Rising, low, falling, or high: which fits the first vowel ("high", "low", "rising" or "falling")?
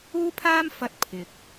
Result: high